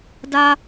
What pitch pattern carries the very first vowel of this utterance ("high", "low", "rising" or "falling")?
high